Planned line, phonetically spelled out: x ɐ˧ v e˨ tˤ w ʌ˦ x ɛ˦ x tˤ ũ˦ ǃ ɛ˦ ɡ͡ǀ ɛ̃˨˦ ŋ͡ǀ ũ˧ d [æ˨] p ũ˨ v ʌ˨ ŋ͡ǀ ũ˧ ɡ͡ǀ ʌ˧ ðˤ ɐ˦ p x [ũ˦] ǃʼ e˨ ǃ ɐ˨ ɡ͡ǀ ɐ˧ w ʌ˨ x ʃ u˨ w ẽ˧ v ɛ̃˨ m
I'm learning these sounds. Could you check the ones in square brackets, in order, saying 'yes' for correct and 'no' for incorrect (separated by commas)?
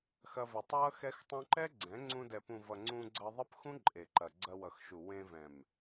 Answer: no, yes